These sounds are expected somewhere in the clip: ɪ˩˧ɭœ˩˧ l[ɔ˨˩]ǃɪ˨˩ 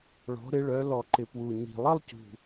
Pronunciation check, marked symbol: correct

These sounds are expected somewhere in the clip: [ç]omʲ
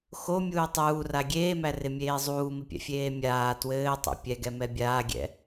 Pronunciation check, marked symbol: incorrect: x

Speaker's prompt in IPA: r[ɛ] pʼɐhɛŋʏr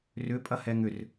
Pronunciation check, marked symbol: incorrect: ʏ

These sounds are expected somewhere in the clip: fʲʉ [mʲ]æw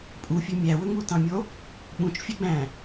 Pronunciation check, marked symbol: correct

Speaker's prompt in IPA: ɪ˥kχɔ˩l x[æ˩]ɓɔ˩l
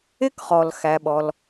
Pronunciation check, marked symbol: correct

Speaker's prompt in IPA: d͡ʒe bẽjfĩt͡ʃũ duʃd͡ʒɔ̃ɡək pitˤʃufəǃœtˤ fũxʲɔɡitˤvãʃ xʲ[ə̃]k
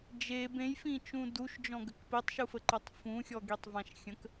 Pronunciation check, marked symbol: correct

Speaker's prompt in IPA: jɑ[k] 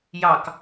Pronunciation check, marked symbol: correct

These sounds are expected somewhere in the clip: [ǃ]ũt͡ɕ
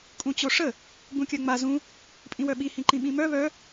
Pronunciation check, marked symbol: incorrect: kʼ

